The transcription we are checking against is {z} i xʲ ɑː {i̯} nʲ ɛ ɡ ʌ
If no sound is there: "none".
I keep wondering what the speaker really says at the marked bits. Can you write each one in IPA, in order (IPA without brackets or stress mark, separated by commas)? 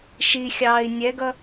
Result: ʃ, i̯